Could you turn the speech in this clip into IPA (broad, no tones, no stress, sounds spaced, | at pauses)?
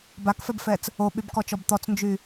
b a k f ɛ b f ɛ t͡s | o ɓ y b k ɔ t͡ʃ ɔ b t̪ ɔ t͡s n d͡ʒ y